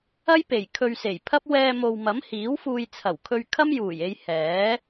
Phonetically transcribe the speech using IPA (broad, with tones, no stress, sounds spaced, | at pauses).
ɐ˥ j p e˨˩ j kʰ ɵ˧ ɥ s e˨˩ j pʰ ɐ˥ p̚ w ɛː˧ m o˨ w m ɐ˨˥ m h iː˨˥ w f uː˧ j t͡sʰ ɐ˨˩ w kʰ ɵ˧ ɥ kʰ ɐ˥ m j uː˨˩ j e˧ j h ɛː˨˥